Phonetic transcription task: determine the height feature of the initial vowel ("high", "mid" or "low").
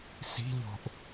high